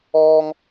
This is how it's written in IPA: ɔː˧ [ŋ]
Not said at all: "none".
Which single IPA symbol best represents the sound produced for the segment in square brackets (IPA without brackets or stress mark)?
ŋ